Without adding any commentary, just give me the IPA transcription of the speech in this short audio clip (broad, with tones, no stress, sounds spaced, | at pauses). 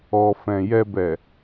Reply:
ɔ˨ f ɛ̃˨ j ɛ˨ b ɛ˨